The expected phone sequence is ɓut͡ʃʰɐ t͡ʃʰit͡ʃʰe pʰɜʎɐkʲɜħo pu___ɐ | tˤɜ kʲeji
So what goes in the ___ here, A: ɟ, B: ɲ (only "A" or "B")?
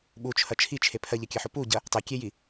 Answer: A